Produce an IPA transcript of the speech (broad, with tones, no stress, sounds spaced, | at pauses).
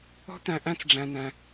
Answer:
ɔ̤˦ t̪ æ̃˧ ʔ æ̃˦ t͡s ɖ͡ʐ æ̃˧ n æ̃˧